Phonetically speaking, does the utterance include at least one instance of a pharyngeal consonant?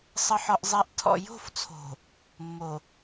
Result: yes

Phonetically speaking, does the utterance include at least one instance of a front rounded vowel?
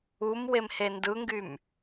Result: yes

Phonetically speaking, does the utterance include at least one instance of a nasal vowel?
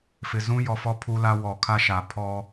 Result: yes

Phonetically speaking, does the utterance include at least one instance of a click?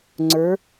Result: yes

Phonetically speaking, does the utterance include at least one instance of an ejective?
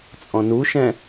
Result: yes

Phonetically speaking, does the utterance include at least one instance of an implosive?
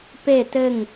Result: no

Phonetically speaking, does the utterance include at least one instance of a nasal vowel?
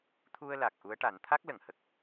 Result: no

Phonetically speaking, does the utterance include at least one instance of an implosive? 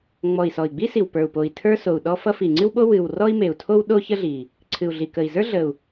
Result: yes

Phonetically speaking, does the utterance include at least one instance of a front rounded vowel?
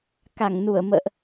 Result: no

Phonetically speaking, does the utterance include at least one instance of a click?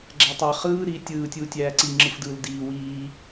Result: yes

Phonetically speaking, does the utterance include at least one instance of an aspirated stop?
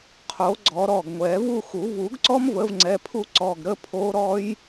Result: yes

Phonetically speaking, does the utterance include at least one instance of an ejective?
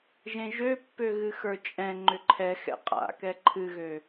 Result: yes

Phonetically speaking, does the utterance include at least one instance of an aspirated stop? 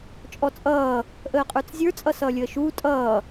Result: no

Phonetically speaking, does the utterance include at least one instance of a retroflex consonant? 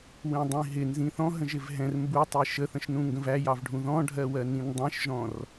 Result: yes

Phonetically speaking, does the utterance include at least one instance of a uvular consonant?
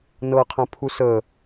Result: yes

